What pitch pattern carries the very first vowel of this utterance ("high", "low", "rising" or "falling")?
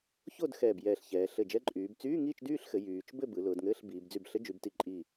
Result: falling